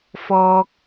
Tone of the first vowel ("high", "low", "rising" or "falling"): high